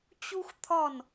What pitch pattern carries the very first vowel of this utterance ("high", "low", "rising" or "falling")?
high